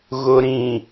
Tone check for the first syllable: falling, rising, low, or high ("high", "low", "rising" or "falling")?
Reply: low